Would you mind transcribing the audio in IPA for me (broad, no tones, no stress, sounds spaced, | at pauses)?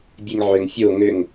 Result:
bʲ e ŋ ʕ ø ŋ fʲ o ŋ ø ŋ